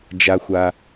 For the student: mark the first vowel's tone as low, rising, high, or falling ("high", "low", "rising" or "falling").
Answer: low